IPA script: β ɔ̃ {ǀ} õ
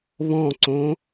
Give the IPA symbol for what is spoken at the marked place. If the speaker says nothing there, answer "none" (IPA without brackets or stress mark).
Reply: ǀ